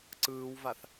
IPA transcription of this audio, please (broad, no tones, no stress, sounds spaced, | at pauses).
ǀ ɯː w v a θ